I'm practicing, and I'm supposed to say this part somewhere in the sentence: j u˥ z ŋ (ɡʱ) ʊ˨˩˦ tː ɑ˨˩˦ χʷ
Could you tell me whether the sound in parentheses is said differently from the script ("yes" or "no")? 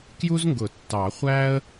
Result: yes